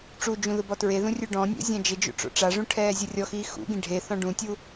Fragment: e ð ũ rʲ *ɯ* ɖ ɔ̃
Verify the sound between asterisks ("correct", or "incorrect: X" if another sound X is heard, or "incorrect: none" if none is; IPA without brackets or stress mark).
incorrect: u